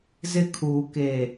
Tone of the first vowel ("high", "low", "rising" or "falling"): high